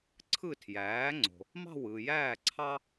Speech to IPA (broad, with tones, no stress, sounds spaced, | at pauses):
ǀʰ ɯ˥˩ tʰ j æː˩˥ ŋ͡ǀ o̤˩ | m ɑ̤˥˩ w ɯ˩ j æː˥˩ ǀʰ ɑ˥